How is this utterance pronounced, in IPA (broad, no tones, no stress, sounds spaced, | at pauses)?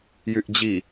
j y ʔ d͡ʑ i